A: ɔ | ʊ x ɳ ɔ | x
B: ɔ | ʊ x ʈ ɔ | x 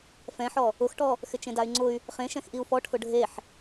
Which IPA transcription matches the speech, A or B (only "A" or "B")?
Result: B